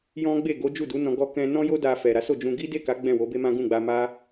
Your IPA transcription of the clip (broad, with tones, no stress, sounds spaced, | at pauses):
j ɔ̃˦ ɡ͡b e˦˨ ɡ o˨˦ d͡ʒ u˦˨ d u˨˦ n ɔ̃˧ ɡ ɔ˧ k ɛ̃˧ n ɔ̃˦ j o˦ d a˧ f ɛ˨ ɾ a˨˦ s o˦˨ d͡ʒ ũ˧ ɡ i˦ d e˦˨ k a˨˦ ɡ͡b ɛ̃˦˨ w o˨˦ b e˦ m ã˦ ɡ ũ˦˨ ɡ͡b a˧ m a˦